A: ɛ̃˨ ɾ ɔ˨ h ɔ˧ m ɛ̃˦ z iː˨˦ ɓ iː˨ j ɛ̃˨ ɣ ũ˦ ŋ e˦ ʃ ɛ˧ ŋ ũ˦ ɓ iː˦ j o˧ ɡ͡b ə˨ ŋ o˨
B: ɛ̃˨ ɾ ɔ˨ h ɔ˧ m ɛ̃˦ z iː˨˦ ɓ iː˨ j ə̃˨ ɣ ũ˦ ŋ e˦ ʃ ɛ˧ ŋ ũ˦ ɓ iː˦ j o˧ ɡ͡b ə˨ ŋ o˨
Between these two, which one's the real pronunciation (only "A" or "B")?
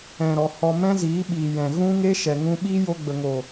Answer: A